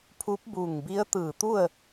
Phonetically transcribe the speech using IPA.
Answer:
pʰu˧˥p̚bu˧˩ŋ bi˧˥ə̯t̪ɯː˧˩t̪u˥˨ə̯

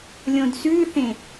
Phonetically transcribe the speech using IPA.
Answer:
lʲõdsʉθẽ

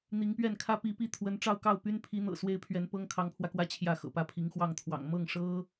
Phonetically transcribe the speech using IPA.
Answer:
n̪i˧˥ŋpɥɛ˥˩n kʰä˥pi˧˥pi˥˩ t̪ʰwə˥n ʈ͡ʂɑ˥˧ʊ̯kɑ˥˩ʊ̯ py˥npʰi˧˥n̪ɤ̰˨˩ swe˥ɪ̯pʰɥɛ˧˥npɤ˥ŋ kʰɑ˧˥ŋpʰwä˧kwä˥ t͡ɕʰjä˥˩xɤ̰˨˩ pä˥˩pʰi˧˥ŋxwɑ˥˩ŋt̪ʰwɑ̰˨˩ŋ mɤ˥˩ŋʂɤ˥

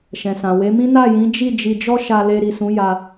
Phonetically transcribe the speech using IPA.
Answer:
ʃɛ̃˨sã˨we˨˦mĩ˦ na˦˨jĩ˨˦d͡ʒi˦˨ d͡ʒi˧d͡ʒɔ˦ʃa˧le˧ ɾi˨sũ˨˦ ja˧

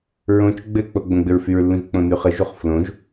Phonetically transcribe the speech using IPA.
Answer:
ɹõt͡ʃ ɡ͡bɘk͡po ɡ͡bõɡ͡bɘɹfyɹlːũʒ k͡põnyχə ʒuχflõʒ

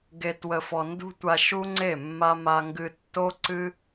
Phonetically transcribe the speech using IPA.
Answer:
ɡe˨twə˨fɔ˨ ndṳ˦tʷa˧ʃu˦ŋ͡ǀe˦˨ mːa˦ma˦ŋɡɨ˦ tːo˦ǀɨ˦

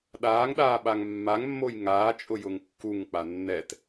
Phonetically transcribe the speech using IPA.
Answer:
ɗaːŋɗaːɓaŋ mːaŋmːoj ŋaːt͡ʃʼʊjʊŋ kːuŋk͡pa nːɛt

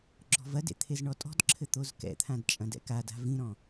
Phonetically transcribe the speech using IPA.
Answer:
ɡ͡ǁɔ̤vɐdḛ t̪ʰezɳɔtʼɔ̤dǁʰɘ t̪ozkɛ̰t̪ʰãd t͡ʃʼɐ̃dɛ̰kada̤ vĩɾɔ̃

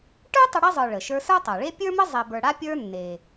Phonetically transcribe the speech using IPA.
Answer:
ʈə˞˥ tˤə˦ɽe˥zˤə˞˨ ɭə˩ʃə˞˦ sə˞˥tˤa˩ɭe˥ pʲə˞˥mə˥ zˤe˨bə˞˨ɽa˥pʲə˞˦ nːe˩

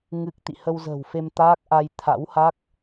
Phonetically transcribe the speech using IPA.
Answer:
ŋɨ˦˥k̚ t̪ḭ˧˨hə˧wzə̤ː˨˩wfe˧m t̪aː˦˥k̚ʔa˧j t̪ʰa̰˧˥wha˦˥k̚

